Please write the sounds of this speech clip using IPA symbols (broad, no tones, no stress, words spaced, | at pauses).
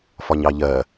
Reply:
fɒɲɑʎɜ